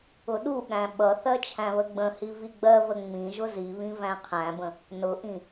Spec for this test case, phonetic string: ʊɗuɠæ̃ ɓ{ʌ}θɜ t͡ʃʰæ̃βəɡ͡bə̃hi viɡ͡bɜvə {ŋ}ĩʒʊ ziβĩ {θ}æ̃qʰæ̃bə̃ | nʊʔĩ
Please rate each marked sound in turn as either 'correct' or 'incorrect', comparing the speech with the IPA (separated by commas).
correct, incorrect, incorrect